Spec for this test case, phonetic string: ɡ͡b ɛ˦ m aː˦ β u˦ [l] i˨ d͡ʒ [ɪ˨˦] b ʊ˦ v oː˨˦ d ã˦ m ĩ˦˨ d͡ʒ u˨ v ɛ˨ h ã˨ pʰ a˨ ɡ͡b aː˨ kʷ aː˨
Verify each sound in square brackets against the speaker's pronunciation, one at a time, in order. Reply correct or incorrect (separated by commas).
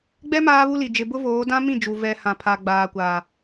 correct, incorrect